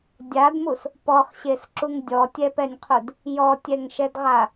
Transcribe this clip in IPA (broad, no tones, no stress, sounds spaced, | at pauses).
dʲ a d m u s | p ɔ χ ɕ e s ǁ u ŋ dʲ ɔ tʲ ɛ p ɛ nʲ qʰ u d | j ɔ tʲ ɛ ŋ ʃ ɛ d ʁ a